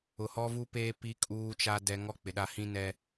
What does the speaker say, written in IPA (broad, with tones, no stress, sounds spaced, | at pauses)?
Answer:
ʊ˨ h ɔ˦ v u˦ p eː˦ p i˦ kʼ uː˦ t͡ʃ a˦ d ɛ˦ ŋ ɔ˦ k͡p ɪ˨ ɗ a˦ h ĩ˦ n ɛ˦